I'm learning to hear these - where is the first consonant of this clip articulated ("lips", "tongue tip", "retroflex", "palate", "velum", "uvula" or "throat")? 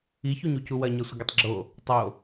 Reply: palate